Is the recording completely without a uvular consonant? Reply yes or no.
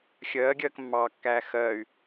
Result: yes